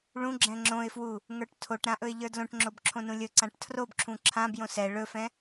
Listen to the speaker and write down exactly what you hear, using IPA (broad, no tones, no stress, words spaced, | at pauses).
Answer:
ɭũɡ͡ǁɛ̃ ŋ͡ǁõɪ̯fwu | ŋə˞ʈtʰoʈɾã ʔɵɪ̯ʎə˞dlõʈŋ͡ǁob ǁʰõnũlʲɵǀãʈ tʰrobǁʰũ ǁʰãbjõ sɛ ɭɵfɛ̃